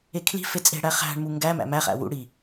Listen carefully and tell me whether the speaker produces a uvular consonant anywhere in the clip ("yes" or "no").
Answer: yes